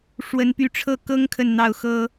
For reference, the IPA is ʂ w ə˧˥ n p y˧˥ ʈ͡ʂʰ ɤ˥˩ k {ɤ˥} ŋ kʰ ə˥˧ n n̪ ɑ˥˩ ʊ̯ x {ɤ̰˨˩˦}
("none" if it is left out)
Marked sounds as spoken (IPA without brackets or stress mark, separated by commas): ɤ˥, ɤ˥